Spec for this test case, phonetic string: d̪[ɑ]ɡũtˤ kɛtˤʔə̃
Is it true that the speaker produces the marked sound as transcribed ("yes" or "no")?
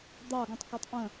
yes